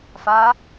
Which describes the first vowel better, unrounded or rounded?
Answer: unrounded